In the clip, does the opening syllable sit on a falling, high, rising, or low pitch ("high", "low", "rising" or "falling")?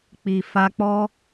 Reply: low